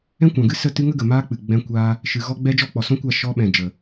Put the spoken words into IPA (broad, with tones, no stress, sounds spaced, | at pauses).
ɛ̃˦ kʷ ã˨ ɡ ɨ˦ s ə˦˨ t ɨ˦ ŋ ə˦ ɡ ə˨ m aː˦ k͡p ɨ˨ ɡ͡b ɛ̃˧ kʷ aː˦ | ʃ ɨ˨ ɣ ɔ˧ ɡ͡b ɛ˧ d͡ʒ ɔ˦˨ k͡p ɔ˨ s ɔ̃˦ kʷ a˦˨ ʃ ɔ˧ ɓ ɛ̃˨ d͡ʒ ə˨